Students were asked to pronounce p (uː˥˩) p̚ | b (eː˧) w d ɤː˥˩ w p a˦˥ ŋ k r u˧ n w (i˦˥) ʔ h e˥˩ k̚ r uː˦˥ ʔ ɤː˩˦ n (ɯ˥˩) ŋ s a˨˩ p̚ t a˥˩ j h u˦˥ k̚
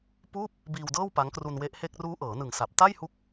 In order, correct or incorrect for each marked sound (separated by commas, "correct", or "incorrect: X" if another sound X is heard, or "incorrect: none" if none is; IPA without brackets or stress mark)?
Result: correct, incorrect: iː˧, incorrect: e˦˥, incorrect: ɯ˨˩